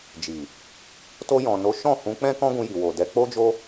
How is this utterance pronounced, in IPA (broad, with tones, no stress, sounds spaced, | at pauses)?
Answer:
d͡ʒ i˨ | t o˧ j ɔ̃˨ n o˨˦ ʃ ɔ̃˦˨ h ũ˨˦ k͡p ɛ̃˦ k ɔ̃˦ ɡ ũ˧ j i˨ w o˨ d ɛ˨˦ k͡p o˦ d͡ʒ o˦